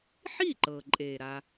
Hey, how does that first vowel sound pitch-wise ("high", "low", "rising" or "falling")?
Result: falling